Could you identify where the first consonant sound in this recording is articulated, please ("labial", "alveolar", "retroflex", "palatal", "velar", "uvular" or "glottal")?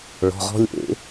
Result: retroflex